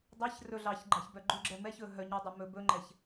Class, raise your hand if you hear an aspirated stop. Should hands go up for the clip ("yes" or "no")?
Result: no